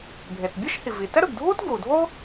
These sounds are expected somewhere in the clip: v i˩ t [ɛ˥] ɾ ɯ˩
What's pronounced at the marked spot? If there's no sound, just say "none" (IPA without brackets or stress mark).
ɛ˥